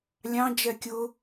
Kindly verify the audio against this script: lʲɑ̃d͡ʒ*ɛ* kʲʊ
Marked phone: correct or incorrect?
correct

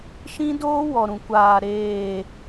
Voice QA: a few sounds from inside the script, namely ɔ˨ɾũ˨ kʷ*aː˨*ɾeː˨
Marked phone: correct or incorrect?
correct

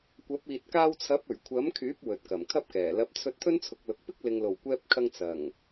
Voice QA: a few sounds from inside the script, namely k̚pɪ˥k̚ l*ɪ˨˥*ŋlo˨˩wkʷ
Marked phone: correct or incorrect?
incorrect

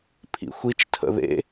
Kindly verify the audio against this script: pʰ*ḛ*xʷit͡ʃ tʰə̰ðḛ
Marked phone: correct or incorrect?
incorrect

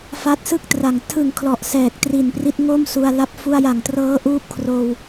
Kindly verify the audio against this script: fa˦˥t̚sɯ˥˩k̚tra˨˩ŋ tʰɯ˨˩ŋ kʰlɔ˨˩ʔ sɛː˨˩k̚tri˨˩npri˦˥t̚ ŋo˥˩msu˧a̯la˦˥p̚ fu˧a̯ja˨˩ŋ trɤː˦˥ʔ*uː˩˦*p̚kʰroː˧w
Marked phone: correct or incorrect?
incorrect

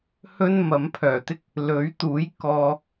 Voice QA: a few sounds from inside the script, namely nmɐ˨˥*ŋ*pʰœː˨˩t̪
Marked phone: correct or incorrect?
incorrect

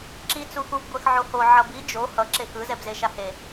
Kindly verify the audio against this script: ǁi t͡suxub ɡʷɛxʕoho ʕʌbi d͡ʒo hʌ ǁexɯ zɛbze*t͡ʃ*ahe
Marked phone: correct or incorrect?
incorrect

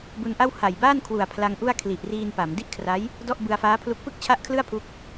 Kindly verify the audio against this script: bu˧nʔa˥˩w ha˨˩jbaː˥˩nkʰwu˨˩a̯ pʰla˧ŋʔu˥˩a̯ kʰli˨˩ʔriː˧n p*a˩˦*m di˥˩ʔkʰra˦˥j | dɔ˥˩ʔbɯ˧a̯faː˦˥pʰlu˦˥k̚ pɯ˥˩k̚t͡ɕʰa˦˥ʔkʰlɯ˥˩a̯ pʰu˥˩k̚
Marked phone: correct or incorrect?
correct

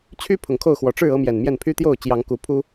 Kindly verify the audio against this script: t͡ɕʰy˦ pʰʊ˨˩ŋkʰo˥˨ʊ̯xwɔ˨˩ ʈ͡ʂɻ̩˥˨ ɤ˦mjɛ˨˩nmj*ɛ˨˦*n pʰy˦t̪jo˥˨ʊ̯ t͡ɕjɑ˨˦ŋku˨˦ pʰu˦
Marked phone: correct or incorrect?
incorrect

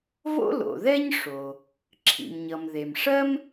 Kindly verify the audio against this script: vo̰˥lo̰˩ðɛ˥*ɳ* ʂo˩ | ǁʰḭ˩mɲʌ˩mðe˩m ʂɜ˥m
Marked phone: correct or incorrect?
incorrect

